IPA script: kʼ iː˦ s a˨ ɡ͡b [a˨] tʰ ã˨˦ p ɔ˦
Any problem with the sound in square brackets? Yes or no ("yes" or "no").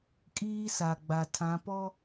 no